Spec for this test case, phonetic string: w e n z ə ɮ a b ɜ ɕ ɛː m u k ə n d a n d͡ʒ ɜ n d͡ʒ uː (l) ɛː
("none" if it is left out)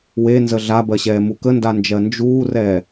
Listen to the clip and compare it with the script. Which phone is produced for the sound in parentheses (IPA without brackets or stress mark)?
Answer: r